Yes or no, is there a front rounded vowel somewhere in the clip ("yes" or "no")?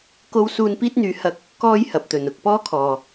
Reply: yes